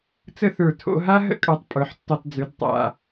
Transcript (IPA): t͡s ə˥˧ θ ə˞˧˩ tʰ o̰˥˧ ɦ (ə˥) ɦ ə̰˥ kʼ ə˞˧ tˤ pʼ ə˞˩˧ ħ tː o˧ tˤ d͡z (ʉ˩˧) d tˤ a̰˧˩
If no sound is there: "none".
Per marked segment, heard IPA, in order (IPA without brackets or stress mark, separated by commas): a˥, ʉ˩˧